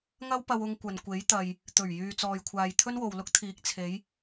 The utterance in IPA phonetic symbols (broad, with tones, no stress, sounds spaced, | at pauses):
ŋ ɐ˥ w p ɐ˧ w ʊ˧ ŋ kʷ ɐ˨ n kʷ e˨˥ j t̪ ɐ˨ j | t̪ ɵ˨˩ ɥ j yː˨ t͡s ɔː˨ j kʷʰ aː˨ j t̪ʰ ɵ˥ n w o˨ w l ʊ˥ k̚ t̪ʰ iː˨˥ k̚ t͡sʰ e˨˧ j